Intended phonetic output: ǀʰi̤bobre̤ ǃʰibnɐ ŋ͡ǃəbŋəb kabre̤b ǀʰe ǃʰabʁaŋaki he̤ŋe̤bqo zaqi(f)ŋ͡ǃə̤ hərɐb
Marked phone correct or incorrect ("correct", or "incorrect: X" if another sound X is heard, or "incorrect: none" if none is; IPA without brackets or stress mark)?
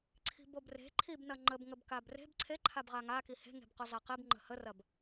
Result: incorrect: b